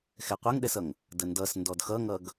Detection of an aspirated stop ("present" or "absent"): absent